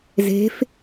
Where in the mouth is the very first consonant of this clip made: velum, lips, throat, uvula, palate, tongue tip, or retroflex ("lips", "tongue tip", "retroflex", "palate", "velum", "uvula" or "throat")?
tongue tip